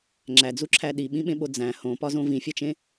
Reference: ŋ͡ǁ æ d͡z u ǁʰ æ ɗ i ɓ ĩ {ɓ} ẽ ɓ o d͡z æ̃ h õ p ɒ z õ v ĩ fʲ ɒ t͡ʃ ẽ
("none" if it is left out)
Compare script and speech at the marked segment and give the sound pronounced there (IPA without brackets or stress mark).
ɓ